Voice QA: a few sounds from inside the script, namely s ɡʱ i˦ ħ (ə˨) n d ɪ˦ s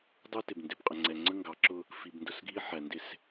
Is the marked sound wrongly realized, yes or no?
yes